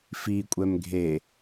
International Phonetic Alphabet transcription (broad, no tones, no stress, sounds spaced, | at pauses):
f i kʷʼ ɛ m ɡʱ e